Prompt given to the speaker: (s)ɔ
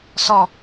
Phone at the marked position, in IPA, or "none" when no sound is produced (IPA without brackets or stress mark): s